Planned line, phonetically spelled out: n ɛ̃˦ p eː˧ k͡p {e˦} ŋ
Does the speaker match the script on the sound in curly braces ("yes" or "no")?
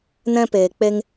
yes